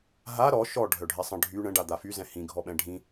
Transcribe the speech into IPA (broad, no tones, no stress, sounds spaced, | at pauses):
ɦ a ɾ ɔ ʃ ɔ ɖʱ œ ɖʱ ɛ sˤ ə̃ ɖʱ y ɳ ə̃ ɖ a d̪ a f y z ɛ̃ h ĩ ɡʱ ɔ ɓ ɛ̃ ɖʱ ĩ